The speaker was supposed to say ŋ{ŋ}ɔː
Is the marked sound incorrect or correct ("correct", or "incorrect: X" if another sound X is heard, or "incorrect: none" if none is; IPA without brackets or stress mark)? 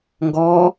incorrect: ɡ